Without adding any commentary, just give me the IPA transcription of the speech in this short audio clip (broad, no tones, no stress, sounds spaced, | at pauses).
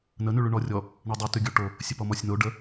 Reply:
n ə n y ɭ y ɳ ɔ rʲ ɔ | ɳ ɔ dˤ o t y ɡʲ o ʈ o | sʲ ə p ɔ m ɔ sʲ n o ɖ ə